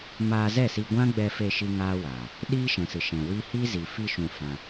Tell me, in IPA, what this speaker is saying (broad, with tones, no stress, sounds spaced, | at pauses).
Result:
m aː˧ z ɛ˦˨ s i˧ ɡʷ ã˦ ɡ͡b ɛ˧ f e˧ ʃ i˦ ŋ aː˦ w aː˨ | ɗ iː˦ ʃ ɛ̃˨ s ɨ˨ ʃ ɛ̃˨ w i˧ h i˦ z i˨ f i˧ ʃ ũ˨ f ã˧